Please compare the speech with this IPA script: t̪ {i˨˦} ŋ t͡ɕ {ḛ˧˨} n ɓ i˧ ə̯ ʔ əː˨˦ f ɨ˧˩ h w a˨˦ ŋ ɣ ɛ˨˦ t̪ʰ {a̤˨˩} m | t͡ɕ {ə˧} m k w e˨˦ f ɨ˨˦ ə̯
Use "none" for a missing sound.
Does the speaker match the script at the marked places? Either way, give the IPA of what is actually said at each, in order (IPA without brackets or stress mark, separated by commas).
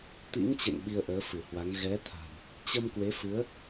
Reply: ḭ˧˥, ḛ˧˨, a̤˨˩, ə˧